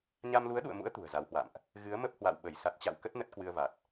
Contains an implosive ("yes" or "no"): yes